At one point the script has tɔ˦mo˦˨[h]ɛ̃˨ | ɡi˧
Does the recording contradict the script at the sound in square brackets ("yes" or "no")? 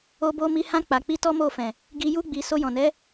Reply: yes